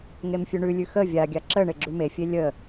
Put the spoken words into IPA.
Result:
ŋ e m fʲ ʉ ɳ ʉ lʲ ʉ x ə vʲ a ɡʲ a ǁ ə ɳ e ɡ͡ǁ ʉ m e fʲ e lʲ ə

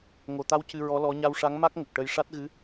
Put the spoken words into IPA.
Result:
ŋ o˨˩˨ t̪ a˧˥ w c ɨ˧ ɹ ɔ˧˥ l ɔ˧˥ ɲ a˧ w ʂ a˧˥ ŋ m a˦˥ k̚ ŋ ə˨˩ k̚ ʈ ə˧ j ʂ a˦˥ t̚ ɣ ɨ˧˥

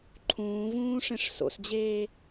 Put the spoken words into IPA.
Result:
ǃʰ ũː v ũː ʂ ẽ ʂ s o̰ s d͡ʑ eː

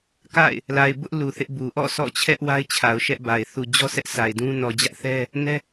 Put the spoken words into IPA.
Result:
k a̰˦˨ ɪ̯ | l a˨ ɪ̯ b ʊ˦ ʔ l u˨ θ ɪ˦ ʔ b u˨ ʔ ɔ̰˦˨ s ɔ̰˦˨ t͡ɕʰ ɛ˦ ʔ w a˦ ɪ̯ t͡ɕʰ a˨ ʊ̯ ʃ ɛ˦ ʔ b a˨ ɪ̯ θ u˨ d͡ʑ ɔ˦ s ɛ˦ ʔ sʰ a˨ ɪ̯ d ũ˦ n ɔ˨ d͡ʑ ä˦ ʔ θ ɛ˦ | n ɛ˦

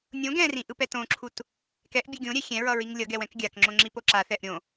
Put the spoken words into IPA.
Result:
nʲ õ ɡ ɛ̃ r ĩ ʔ ɯ p ɛ t õ ǁʰ u t | k ɛ ʔ bʲ ɯ ɡʲ õ ɾʲ ɛ xʲ ɛ̃ ɹ ʌ ɹ i ŋ lʲ ʌ ɡ ɛ w ɛ̃ k ɡʲ a k ŋ͡ǁ õ ŋ͡ǁ i p o ǁ a θ ɛ ʔ ɾʲ õ

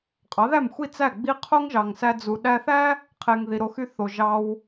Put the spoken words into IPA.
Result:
qʼ ɑ˩˥ ð æ˥˩ m xʷ i˥˩ t͡s æ˥˩ ɡ͡b i˥ qʰ o˥ ŋ ʒ ɑ˩ ŋ s æ˧ d͡z u˩ ɗ æ˧ θ æ˥ | qʰ e˩ ŋ ð i˩ ɾ o˧ x y˥˩ θ o˩ ʒ ɑ˧ w

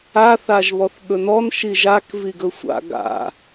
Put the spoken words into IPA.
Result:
a θ a ʒ β ɔ θ ɠ ɵ n ɔ n ʃ i ʒ a k v i ɡ ɵ sʷ a̰ ɡ a̰

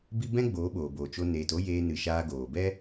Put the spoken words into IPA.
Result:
b i˦ b ɛ̃˦ ɡ͡b oː˨˦ ɓ oː˨ b oː˨ t͡ʃ o˧ n eː˨ t o˦ j eː˧ n ɨ˨ ʃ aː˧ ɡ oː˨ b ɛ˦

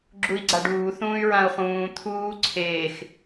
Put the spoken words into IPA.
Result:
ɡ͡ǁ u i̯ ɡ͡ǀ a ɖ uː θ ũː y̯ ɹ ã u̯ χ ũː t̪ʰ uː ǀʰ eː x

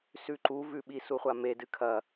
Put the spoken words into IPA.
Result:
s ʉ ǃ u v ʉ ɓ i s u χʷ a m e d ɨ kʰ ɐ

